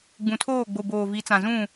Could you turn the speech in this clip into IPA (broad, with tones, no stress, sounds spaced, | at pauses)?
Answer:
ɡ͡b ũ˨ tʰ oː˦˨ ɡ͡b o˨ b oː˨ v i˨˦ t͡s ã˨ z ũ˦˨